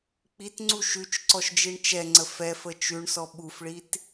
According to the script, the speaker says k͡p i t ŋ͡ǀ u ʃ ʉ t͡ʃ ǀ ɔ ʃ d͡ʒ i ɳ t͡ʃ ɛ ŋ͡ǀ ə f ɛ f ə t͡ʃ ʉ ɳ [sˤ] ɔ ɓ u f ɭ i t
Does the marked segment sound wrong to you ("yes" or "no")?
yes